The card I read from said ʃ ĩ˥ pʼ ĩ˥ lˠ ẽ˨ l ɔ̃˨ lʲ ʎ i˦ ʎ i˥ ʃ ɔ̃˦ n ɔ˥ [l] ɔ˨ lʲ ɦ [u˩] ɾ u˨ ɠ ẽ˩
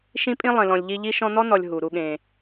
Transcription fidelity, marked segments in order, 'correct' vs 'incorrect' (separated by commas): incorrect, correct